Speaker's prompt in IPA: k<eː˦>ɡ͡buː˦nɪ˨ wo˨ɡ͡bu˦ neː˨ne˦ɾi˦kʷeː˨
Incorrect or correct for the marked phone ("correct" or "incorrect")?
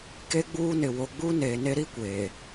incorrect